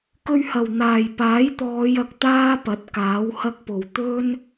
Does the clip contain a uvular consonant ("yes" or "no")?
no